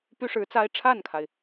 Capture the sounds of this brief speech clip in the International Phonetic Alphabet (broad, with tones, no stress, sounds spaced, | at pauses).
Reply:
p y˥ ʂ ɻ̩˧˥ t͡s a˥ ɪ̯ ʈ͡ʂʰ a˥˩ n kʰ a˩ ɪ̯